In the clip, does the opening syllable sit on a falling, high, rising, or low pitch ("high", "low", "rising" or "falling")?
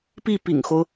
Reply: falling